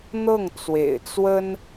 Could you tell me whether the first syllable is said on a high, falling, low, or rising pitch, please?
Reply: falling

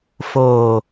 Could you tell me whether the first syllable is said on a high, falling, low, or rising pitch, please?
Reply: low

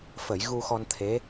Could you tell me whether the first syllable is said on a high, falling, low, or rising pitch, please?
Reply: low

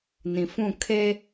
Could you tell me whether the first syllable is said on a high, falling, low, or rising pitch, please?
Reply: low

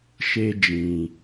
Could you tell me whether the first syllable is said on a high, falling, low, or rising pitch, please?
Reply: high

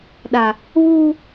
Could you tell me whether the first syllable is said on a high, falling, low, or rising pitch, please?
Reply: low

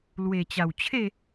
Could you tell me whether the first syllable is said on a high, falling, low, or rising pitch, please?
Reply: low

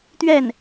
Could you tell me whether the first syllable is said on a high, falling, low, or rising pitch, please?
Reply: falling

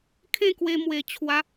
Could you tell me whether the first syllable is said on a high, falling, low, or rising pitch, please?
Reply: falling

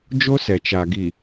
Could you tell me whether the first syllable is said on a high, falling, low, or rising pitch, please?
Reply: high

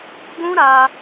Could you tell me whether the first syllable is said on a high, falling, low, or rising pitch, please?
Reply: high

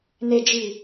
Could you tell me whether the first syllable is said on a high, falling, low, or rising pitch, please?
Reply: low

